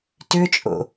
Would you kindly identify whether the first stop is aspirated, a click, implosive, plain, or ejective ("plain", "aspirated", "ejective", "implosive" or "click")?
plain